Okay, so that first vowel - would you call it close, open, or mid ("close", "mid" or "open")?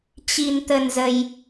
close